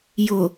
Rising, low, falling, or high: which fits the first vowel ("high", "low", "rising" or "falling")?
low